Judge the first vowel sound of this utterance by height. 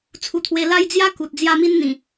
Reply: high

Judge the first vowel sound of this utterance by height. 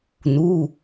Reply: high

